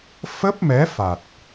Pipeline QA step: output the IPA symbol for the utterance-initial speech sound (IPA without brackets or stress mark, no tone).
f